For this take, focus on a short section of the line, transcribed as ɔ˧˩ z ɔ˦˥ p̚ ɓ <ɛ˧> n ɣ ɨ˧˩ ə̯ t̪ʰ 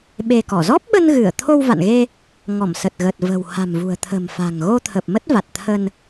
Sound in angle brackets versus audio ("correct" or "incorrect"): incorrect